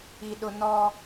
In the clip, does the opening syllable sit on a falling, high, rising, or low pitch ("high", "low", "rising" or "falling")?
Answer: high